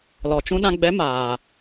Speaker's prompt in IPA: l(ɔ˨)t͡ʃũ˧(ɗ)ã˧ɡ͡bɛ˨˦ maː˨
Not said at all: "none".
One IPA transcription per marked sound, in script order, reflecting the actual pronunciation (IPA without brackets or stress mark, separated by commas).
ɔ˨, ɗ